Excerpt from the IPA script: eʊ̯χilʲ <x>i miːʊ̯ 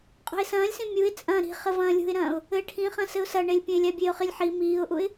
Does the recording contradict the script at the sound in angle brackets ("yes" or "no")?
yes